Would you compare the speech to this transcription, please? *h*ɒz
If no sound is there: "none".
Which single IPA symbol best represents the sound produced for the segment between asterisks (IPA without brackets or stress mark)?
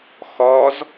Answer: x